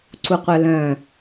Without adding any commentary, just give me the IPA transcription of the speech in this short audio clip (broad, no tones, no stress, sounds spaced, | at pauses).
ǀ u qʷ œ l œ̃